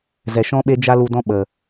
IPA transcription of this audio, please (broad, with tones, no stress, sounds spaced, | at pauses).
z ɛ˨ ʃ ɔ̃˦ ɓ e˦ d͡ʒ a˦ l u˧ d ɔ̃˦ ɓ ə˨